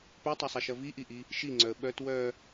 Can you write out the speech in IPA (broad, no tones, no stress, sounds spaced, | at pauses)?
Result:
p œ tˤ ɐ sˤ ɐ ʃ ɐ v i ʔ i ʔ i | ʃ i ŋ͡ǀ œ ə̯ ɓ œ t w œ